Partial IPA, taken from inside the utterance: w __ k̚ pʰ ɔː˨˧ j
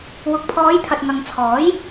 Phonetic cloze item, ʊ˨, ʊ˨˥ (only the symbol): ʊ˨